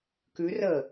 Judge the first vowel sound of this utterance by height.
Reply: high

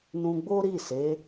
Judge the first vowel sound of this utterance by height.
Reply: high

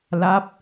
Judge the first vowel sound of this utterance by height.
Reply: low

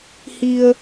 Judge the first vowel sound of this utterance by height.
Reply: high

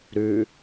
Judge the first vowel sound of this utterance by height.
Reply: high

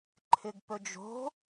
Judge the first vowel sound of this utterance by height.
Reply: high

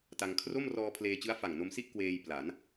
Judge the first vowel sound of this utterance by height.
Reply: low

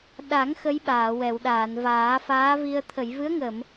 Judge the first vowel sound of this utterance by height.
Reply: low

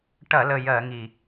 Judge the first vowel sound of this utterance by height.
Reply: low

